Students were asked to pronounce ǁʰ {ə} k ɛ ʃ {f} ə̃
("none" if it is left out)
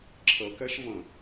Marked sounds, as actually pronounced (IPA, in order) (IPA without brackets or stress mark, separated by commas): ə, v